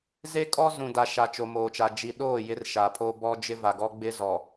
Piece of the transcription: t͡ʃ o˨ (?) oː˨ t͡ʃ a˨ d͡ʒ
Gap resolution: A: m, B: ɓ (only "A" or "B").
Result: A